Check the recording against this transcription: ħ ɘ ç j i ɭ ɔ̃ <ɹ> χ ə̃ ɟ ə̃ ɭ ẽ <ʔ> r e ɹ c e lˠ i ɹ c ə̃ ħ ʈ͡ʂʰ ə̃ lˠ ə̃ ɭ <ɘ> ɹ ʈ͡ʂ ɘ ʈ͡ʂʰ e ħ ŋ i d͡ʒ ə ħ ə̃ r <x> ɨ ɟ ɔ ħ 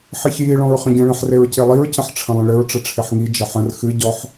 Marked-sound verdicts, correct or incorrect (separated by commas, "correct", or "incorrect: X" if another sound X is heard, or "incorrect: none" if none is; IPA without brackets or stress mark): correct, incorrect: ħ, correct, correct